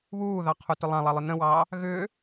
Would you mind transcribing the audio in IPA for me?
β uː ð ɑ qʰ u t ʏ lˠ ã lˠ a lˠ ʏ n ə̃ w ɑː | ɣ ʏː

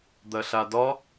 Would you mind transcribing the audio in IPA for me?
d̪ ɐ ɬ a d ɒ

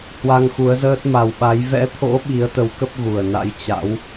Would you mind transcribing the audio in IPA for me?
h w a˧ ŋ x u˨˦ ə̯ z əː˦˥ t̚ m a˨˩ w ɓ a˨˦ j v ɛ̰˧˥ t̪ʰ o̰˧˥ ɓ i˨˦ ə̯ t̪ ə˨˦ w k ə˦˥ p̚ ɣ u˨˩ ə̯ n a̰˧˥ j t͡ɕ a̰˧˥ w

